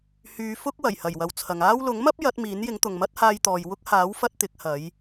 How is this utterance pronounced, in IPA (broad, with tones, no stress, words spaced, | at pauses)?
hyː˧fʊ˥k̚ wɐ˨˩jhɐ˨˩jwɐ˨w t͡sʰɐ˨ŋaː˥w lʊ˨˥ŋmɐ˥p̚ jɐ˨˥t̚miː˨˥njɪ˨˥ŋ t̪ʊ˨ŋmɐ˥t̚haː˧jt̪ɔː˨j wʊ˧k̚haː˨˥wfɐ˧t̚ t̪ɪ˨˥k̚hɐ˨˧j